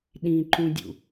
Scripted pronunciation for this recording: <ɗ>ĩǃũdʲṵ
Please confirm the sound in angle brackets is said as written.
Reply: yes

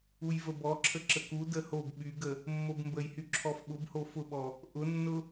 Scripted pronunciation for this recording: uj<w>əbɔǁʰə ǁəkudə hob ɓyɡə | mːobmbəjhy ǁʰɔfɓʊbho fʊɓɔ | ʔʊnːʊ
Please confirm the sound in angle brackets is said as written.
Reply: no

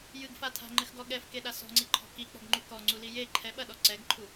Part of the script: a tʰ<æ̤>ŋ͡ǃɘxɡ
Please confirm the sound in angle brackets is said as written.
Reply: no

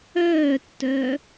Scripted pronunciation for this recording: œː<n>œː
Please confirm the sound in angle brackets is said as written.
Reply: no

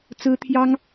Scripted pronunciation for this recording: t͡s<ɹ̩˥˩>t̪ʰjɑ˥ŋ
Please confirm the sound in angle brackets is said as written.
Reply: no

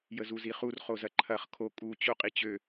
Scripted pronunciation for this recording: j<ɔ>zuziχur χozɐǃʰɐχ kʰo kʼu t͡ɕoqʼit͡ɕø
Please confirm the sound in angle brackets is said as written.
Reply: no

